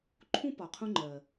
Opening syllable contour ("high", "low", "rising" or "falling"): high